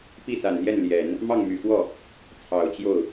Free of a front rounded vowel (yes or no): no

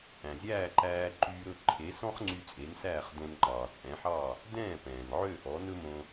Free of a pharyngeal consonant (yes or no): no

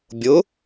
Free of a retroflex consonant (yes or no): yes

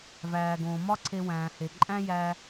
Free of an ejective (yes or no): no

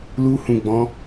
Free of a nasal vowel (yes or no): no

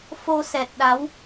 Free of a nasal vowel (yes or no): yes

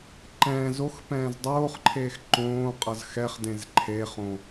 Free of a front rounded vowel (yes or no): yes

